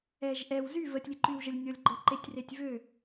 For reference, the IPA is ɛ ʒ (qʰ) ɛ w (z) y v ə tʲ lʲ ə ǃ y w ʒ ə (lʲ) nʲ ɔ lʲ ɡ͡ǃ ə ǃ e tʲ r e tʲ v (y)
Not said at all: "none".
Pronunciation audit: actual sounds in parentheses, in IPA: ʔ, z, lʲ, ø

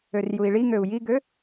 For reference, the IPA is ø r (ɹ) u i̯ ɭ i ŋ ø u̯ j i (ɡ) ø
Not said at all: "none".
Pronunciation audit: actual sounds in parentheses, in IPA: j, ɡ

